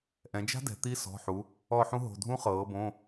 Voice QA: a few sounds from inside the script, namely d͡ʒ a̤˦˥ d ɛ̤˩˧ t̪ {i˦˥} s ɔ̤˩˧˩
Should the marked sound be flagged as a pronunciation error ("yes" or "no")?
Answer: no